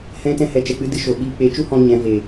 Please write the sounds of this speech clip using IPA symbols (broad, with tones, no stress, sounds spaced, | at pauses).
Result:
h ɛ̃˧ t ɛ̃˧ h ɛ˨ t͡ʃ ɛ˨ k͡p ɨ˦ d ɨ˧ ʃ o˨ ɓ iː˧ k͡p e˨˦ t͡ʃ u˦ h ɔ̃˧ ɲ ɛ̃˨˦ v e˨